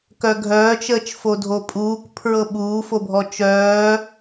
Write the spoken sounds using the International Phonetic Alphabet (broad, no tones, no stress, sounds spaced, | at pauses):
k œ ɡʱ œː t͡ʃ əː t͡ʃ f o dʱ o pʼ uː k pʰ ɹ ɤ ɓ uː f o bʱ ɔ t͡ʃ œː